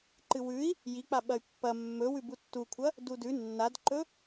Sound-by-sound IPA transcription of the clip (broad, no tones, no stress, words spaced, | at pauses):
ǃɨwʉi̯ | jik͡pa ɓɐy̯pːɐ mːɵwʉ butːukʷʰɐ | dudʉ nːadǃɵ